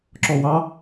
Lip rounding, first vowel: rounded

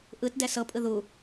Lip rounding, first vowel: unrounded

